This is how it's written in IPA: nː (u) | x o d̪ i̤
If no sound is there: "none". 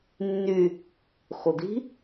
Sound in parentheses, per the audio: y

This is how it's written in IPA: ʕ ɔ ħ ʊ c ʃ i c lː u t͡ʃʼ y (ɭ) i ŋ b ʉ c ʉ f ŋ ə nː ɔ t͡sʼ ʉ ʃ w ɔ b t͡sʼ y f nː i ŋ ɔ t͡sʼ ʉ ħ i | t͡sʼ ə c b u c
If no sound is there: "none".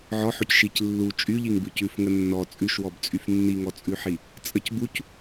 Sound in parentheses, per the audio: ʎ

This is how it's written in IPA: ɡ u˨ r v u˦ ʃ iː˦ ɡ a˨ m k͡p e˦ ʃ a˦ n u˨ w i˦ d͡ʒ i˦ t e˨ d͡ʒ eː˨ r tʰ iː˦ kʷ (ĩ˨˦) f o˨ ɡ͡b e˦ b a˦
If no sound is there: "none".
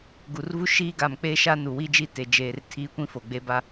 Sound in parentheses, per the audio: ĩ˦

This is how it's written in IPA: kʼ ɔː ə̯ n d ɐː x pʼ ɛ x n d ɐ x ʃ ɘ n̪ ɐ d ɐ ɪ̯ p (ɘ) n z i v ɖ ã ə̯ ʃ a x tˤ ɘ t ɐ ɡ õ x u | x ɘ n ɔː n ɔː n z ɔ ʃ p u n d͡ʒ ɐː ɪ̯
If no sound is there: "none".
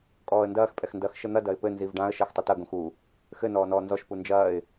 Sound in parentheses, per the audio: ɘ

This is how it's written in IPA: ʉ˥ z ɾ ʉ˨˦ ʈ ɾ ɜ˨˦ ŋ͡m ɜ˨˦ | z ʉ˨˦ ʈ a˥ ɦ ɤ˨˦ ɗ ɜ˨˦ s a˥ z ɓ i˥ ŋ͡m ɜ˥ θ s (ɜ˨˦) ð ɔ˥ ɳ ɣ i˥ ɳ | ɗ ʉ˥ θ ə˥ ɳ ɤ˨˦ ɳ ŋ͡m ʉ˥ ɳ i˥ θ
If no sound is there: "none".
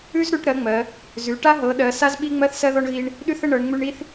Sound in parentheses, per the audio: ɜ˥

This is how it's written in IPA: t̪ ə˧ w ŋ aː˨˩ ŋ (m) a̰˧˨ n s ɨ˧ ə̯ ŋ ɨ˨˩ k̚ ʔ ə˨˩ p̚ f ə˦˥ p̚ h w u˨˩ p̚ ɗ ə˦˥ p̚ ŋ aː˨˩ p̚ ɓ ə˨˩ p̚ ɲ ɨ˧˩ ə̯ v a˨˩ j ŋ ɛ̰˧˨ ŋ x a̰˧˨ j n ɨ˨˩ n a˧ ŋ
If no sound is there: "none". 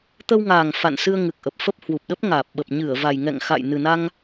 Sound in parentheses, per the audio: f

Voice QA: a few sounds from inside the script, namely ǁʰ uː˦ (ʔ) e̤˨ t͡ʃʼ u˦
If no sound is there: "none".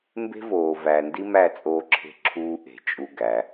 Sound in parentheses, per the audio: ʔ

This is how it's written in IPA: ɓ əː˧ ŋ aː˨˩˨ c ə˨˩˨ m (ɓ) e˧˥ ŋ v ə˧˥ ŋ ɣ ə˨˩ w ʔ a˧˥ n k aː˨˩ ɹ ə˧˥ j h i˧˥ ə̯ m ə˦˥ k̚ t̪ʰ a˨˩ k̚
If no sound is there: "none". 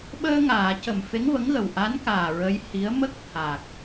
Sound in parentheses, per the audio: f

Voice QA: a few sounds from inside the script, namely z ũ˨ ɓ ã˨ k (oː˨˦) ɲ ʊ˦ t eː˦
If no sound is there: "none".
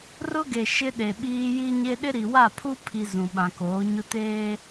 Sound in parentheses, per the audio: oː˨˦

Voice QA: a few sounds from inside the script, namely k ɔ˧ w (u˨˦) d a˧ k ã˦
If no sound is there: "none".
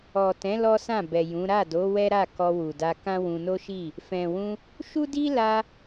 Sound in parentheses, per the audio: u˨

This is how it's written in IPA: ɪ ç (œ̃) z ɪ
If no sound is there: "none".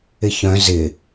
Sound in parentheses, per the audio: œ̃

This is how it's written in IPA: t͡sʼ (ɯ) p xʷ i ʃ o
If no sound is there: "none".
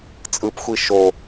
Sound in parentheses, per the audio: ɯ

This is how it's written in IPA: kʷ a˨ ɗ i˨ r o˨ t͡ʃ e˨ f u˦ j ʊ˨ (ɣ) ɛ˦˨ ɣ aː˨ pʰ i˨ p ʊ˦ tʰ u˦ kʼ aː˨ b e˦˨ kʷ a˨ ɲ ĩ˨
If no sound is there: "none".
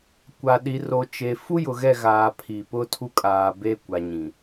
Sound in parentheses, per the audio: ɣ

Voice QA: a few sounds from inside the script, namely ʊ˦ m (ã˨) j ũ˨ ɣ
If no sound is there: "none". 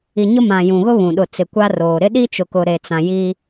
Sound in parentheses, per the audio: ã˨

